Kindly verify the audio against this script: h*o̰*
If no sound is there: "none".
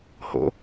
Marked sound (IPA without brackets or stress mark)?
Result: o̰